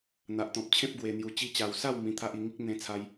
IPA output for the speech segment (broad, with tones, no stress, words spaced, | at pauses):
n̪a˨ʔt̪ɔ̃˨p̚t͡ɕʰẽ˦p̚ ɡwe˨˩n̪ju˨˩ t͡ɕi˧t͡ɕa˨˩wsa˥˧w mĩ˧t̪ʰa˦ʔi˧ ŋi˦k̚ n̪ẽ˧t͡sʰa˧j